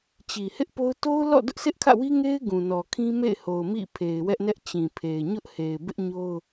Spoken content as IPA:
t͡ɕ i˨ h ɪ˦ ʔ p o˦ ʊ̯ t o˦ ʊ̯ l ɔ̰˦˨ d ʊ˦ ʔ s ɪ˦ ʔ kʰ ä̰˦˨ w i˦ ŋ e˦ ɪ̯ ɡ ũ˨ n ɔ˨ kʰ ĩ˦ m ḛ˦˨ ɪ̯ h o˨ ʊ̯ m ḭ˦˨ pʰ e˨ ɪ̯ w ɛ˦ ʔ n ɛ˦ ʔ t͡ɕ ĩ˨ pʰ e˨ ɪ̯ ɲ ʊ˦ ʔ h e˨ ɪ̯ b ɪ˦ ʔ ɲ o˦ ʊ̯

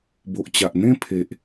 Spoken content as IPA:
b o˨ ʔ t͡ɕ a˨ ʔ n̪ ẽ˦ pʰ e˨ ʔ

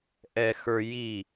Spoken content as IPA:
ʔ ɛ x ə˞ j i

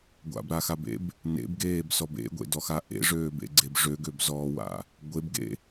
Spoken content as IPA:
ɡʷ a̰ b ɾ a x a b ḛ b | n ḛ b ɡ eː b s ɔ b ḛ ɡʷ ḛ d ɔ x a ʔ ḛ ʐ øː b ḛ ɡ͡ǀ e b ʐ ø ɡ ø b z ɔː w a̰ | ɡʷ e b ɡ ḛ

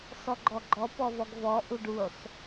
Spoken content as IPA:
s ɔ ɡ͡ǃ ɔ ɡ͡ǃ ɔ p ɔ v ɔ ɡ v ɔ ʔ u ɖ u sˤ

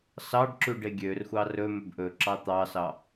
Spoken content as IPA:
s ɑ ɖ ǁ ʉ ɖ e ɡʲ ø r xʷ ɑ r ɵ m ɵ b ʔ ɵ ǁ ɑ t̪ ɑ s ɑ

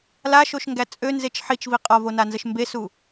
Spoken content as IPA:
l a ʃ o ʃ ŋ ɡ æ t͡sʼ ø n z e t͡ʃ ħ i t͡ʃ v i qʼ ɒ v o n a n z ə ʃ m b e s u

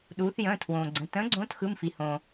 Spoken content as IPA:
ɗ uː˩˧ θ j ə̃ː˩˧˩ tʰ w õː˩ ɡ͡ǀ ə̃˩˧˩ t ə̃ː˨˥ ɡ͡ǀ õː˨˥ t x ɯ˩˧˩ m f i˩ h õː˩

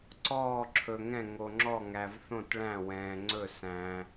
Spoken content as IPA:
ǀ ɔː˧˩ ǁʰ ɵ˩ ŋ ɛ̃˧˩ ŋ o˩ ŋ͡ǁ ɔ˧˩ ŋ æ˩ v θ õ˧˩ t ɭ æ̃˧˩ w ɛ̃ː˩ ŋ͡ǀ ɵ˧˩ s æ̃˩

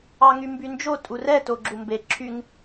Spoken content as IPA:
ɑ ŋ y m b y n d͡ʒ o tʼ u r ɛ t o ɡ͡ǁ u m b e ǁʰ y ŋ

